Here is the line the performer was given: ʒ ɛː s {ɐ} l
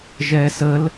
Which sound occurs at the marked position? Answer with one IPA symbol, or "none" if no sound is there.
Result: ə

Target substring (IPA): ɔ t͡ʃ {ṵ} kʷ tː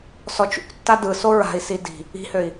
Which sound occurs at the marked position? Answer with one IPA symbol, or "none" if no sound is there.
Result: ṵ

